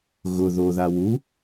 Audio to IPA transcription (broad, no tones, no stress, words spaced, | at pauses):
ɣʊ ðoða wu